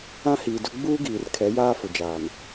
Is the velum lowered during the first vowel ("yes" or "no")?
yes